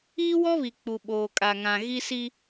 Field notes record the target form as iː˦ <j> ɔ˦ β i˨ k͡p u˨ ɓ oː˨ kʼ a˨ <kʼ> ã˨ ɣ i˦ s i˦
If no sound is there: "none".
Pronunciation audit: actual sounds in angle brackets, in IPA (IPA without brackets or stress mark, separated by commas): w, ŋ